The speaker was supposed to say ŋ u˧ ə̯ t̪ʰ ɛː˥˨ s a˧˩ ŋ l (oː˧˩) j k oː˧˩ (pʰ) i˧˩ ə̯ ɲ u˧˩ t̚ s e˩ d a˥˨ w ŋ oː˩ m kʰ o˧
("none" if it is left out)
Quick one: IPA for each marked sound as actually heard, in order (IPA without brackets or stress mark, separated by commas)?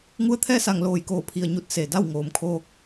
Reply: oː˧˩, pʰ